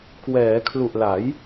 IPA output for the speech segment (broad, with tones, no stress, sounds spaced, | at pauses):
k w ɛː˩˦ kʰ l u˨˩ ʔ l a˩˦ j